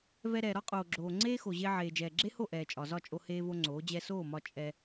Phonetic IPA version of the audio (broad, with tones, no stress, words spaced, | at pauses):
vɛ˧ɾɛː˨ ɾɒ˦qʼoː˨ɡ͡ǁoː˨ ŋ͡ǀeː˦xo˨ʑe˧ʕeː˨ d͡ʒɛː˨ɡ͡ǁe˦ho˦˨ ʔɛː˨t͡ʃʼɒ˨zɒ˦˨t͡ʃʼo˧ heː˦vo˦ŋ͡ǀoː˨˦ d͡ʑɛ˧soː˦˨mɒ˧ t͡ʃʼɛ˧